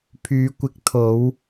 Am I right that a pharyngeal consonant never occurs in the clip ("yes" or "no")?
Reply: yes